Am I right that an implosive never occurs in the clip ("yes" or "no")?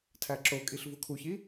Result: yes